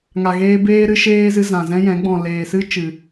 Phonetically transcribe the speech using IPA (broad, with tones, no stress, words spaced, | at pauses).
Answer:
ŋa˨ɣeː˧ beː˦ɾɨ˧ʃeː˦zɨ˧ zã˨zɛ̃˦jɛ̃˨˦ ɡ͡bɔ̃˨leː˨sɨ˦ t͡ʃɨ˨